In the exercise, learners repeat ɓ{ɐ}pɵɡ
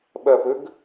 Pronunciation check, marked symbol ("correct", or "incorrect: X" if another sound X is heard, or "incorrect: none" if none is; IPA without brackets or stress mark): correct